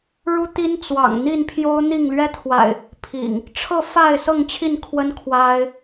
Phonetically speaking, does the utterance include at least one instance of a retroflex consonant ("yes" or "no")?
yes